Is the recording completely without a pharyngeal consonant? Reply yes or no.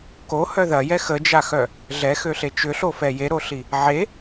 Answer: no